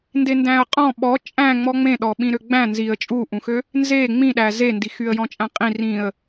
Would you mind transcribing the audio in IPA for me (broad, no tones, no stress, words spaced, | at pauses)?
ndendæ̃ə̯qʼɔ̃ ɓɔ t͡ʃʼæ̃ ŋ͡mɔŋ͡mẽɗɔ ɓĩɾøɡ͡bæ̃ nziə̯ t͡ʃʼuʔũxø | nze ŋ͡mĩɗæ zendi xyə̯jɔ̃t͡ʃʼæ̃qʼĩ rĩə̯